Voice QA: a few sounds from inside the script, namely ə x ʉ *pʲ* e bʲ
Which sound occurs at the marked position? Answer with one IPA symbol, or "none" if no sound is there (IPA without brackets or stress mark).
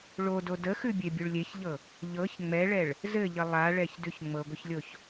bʲ